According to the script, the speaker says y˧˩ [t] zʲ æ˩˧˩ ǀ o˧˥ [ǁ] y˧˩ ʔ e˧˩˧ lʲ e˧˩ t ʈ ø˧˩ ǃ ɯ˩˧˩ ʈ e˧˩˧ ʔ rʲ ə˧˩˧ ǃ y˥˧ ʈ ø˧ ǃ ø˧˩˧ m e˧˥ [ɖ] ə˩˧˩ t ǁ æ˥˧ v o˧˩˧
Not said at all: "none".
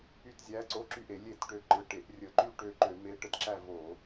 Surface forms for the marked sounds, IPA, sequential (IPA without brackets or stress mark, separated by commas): t, ǁ, ʈ